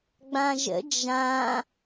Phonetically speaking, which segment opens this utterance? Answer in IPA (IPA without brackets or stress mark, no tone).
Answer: ɡ͡b